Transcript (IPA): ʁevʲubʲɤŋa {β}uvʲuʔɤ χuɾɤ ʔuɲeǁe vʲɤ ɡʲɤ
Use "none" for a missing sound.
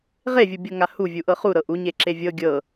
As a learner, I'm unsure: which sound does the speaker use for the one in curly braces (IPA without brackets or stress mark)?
h